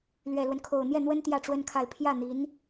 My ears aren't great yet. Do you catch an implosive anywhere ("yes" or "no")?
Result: no